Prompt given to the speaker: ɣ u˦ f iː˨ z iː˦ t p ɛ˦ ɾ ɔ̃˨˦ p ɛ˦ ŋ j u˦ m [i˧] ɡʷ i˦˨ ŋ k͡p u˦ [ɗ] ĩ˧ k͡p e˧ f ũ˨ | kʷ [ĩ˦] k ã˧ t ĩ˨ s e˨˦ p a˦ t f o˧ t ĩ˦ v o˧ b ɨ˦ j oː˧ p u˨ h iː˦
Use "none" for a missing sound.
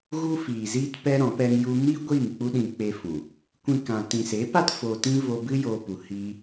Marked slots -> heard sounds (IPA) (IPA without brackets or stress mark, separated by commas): i˦, ɗ, ĩ˦